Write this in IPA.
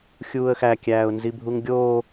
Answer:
xʲ uː ə̯ x æ kʲ æː ʊ̯ n z i bʱ u ŋ ɡʲ oː

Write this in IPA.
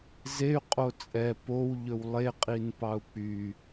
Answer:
z e y̯ qʼ o t͡sʼ ɛ p o w ʎ ɵ w lˠ e qʼ i n p ɑ u̯ k͡p y

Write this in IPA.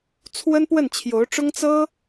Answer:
t͡sʰ w ə˥ n p w ə˥˩ n t͡ɕʰ j o˧˥ ʊ̯ ʈ͡ʂ ʊ˥ ŋ t͡s ɤ˥

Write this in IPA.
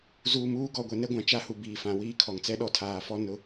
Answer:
z uː˨ m uː˦ ɡ ɔ˨ ɡʷ ɛ˨ n ɛ˦ ɡʷ ã˨ t͡ʃ a˦ h u˨ b iː˨ f ã˨ w iː˦ kʰ ɔ˨ ŋ t͡s ɛ˦ ɗ ɔ˦˨ tʰ aː˨ f ɔ˦ n ʊ˦

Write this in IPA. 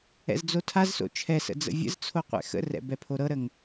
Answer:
ɛ̰ z d͡z o tʰ a z s o̰ t͡ʃʰ ɛ s ə̰ d͡z ə̰ vʲ ə̰ z t͡sʰ o qʷ ɛ̰ x ə̰ r ɛ̰ b ɛ pʰ o ɾ ɤ ɾ ə ŋ

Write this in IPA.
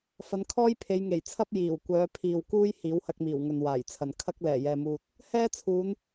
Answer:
f ɐ˨˧ n kʰ ɔː˥ j pʰ e˨˧ j ŋ e˨˩ j t͡sʰ ɐ˥ p̚ j iː˨˩ w kʷ œː˨˧ pʰ iː˨ w k uː˥ j h iː˨˥ w h ɐ˧ k̚ m iː˨˩ w ŋ ɵ˨ n w aː˨˩ j t͡sʰ ɐ˨ n kʰ ɐ˥ k̚ l ɛː˨˩ j ɛː˨ m uː˧ t̚ | h ɛː˥ t͡sʰ uː˨˧ n

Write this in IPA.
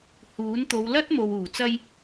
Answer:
h uː˨˥ n t̪ o˨˧ w l ɐ˥ t̚ m o˨ w uː˨˩ t͡s ɐ˧ j

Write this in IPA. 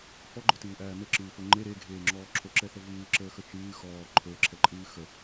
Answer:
f ɔ ɡ͡ǃ ə˞ t ɨː ʔ æː m ə ǁ ɨː f o ŋ͡ǃ e ɾ e ɡʱ eː ŋ͡ǁ ɔː ǁʰ o ǁ ɛ θ ə v ɨː ǁ əː x ə t͡ʃ ɨː x ɔː ǃʰ ə˞ ǁʰ ɛ ǃʼ ɨː x ə

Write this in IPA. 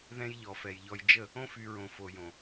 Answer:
ð ɛ̃˦ j ʎ ɔ˨ f ɛ˨ j ʎ ɔ˦ j d͡ʒ ə˦˨ | õ˦ f y˨ ɹ õ˨ f o˨ j õ˨

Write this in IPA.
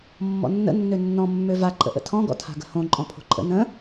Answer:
mː ɔ̰ nː ə̰ nː ø nː ɔ̃ mː ø v a ǃʼ ə̰ ʔ ə̰ tʰ ɔ̃ ɡ ɔ̰ tʰ a̤ ɡ ə̤ h õ ǃʼ ɔ̃ pʰ o̤ ǃʼ ə̰ n ə̃

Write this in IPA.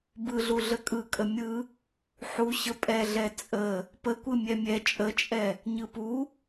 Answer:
b ɯ ɮ u ɮ ə kʼ ɯ kʼ ə mʲ ɯ | ħ u ɕ ə pʼ ɛ ɮ ɛ t͡sʼ ə | p ə kʷ ɯ mʲ ɛ mʲ ɛ t͡ʃʼ ə t͡ʃʼ ɛ | ɲ ɯ p u

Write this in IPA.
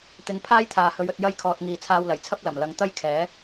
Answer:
t̪ ɪ˨˧ ŋ pʰ aː˥ j t̪ʰ aː˨ h ɵ˨˧ ɥ ɵ˧ t̚ j ɐ˥ j kʰ ɔː˧ t̚ ŋ iː˨ t͡sʰ aː˧ w l ɐ˨˩ j t͡sʰ ɐ˥ p̚ l ɐ˨˩ m l ɐ˨˧ ŋ t̪ ɐ˥ j kʰ ɛː˨˥

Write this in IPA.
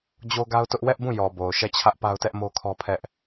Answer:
d͡ʑ o˦ ɡ a˦ ʊ̯ t ʊ˦ ʔ w ɛ˦ ʔ b ũ˦˨ j ɔ˨ b o˨ ʊ̯ ʃ ɛ˦˨ t͡ɕʰ ä˦ ʔ p a˦ ʊ̯ t ɛ˦ ʔ m o˦ kʰ ɔ˦ pʰ ɛ˦ ʔ

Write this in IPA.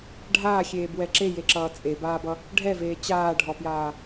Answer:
ɖʱ aː xʲ eː b w ɛ ǁ e j e ǁ ʌː t͡sʼ e b aː b ʌ | ɖʱ ɛ v eː t͡ɕ aː ɖʱ ɔ p j aː

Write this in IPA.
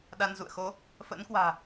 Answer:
ɗ a˧ n z ṵ˧˨ ə̯ x o˨˦ | f ə̰ː˧˥ n k w a̤ː˨˩

